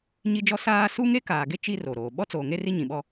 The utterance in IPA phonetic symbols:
ɲ i˦ d͡ʒ ɔ˦ s aː˦ s u˦ ŋ e˦ k aː˨ ɡ e˦ t͡ʃ i˦ r o˨ ɾ oː˨ ɓ ɔ˦ t͡s oː˨ ŋ e˦ r i˦ ɲ ĩ˨ ɓ ɔ˦

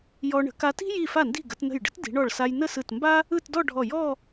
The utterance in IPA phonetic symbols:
j ɔ˧ ɳ ə̤˩˧ k a˧ t i̤˥ j i˧˩ f a˧˩ n d i̤˧˩ ɡ ə˩˧ t n ə̤˧˩ j ɖ ə̤˥ t d i̤˩˧ ɳ ɔ˧˩ ɭ s a˧ j n ə˥˧ s ɯ˧˩ t m b a˥ | ɯ˥˧ t d ɔ˥˧ ɖʱ ɔ˧˩ j ɔ˥˧

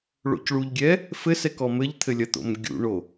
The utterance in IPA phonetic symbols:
ɭ o̰ c ɭ u ʎ ɡʲ ɛ | f ɘ s ɛ k ɔ m ɘ ʎ t̪ʰ ɘ lʲ ɐ t̪ o̰ m ɡʲ ṵ ɳ o

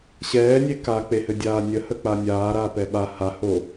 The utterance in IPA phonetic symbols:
ɕ ɛː nʲ e k a k͡p e h ɘ dʲ aː nʲ ə h ə k͡p a nʲ aː ɾ aː p ɛ ɓ a h a h o

